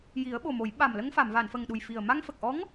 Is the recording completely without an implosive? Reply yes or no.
no